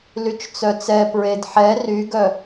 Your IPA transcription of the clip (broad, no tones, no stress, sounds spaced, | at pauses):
l y t͡ʃ t͡s œ t͡s ɛ p ɹ e d ħ ɛ r y ɡ œ